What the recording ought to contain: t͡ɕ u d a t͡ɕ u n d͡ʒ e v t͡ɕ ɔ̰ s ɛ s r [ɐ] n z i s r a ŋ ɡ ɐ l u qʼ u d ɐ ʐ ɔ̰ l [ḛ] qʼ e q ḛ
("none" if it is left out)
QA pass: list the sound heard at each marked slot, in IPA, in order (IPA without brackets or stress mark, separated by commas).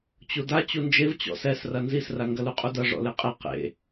ɐ, e